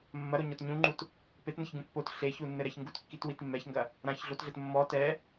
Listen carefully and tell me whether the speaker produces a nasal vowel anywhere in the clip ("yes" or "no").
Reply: yes